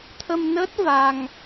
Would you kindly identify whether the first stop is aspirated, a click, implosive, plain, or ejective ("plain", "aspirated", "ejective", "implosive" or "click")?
aspirated